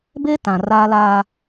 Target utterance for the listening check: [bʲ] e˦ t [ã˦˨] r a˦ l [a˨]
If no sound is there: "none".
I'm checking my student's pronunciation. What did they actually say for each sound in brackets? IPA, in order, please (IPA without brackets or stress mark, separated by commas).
b, ã˨, a˦